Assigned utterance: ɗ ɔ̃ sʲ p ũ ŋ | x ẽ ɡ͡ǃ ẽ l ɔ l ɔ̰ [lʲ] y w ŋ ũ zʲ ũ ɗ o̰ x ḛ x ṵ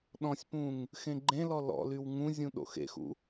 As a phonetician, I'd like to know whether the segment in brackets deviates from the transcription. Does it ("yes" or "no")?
yes